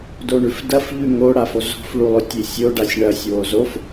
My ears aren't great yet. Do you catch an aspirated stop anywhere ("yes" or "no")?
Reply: no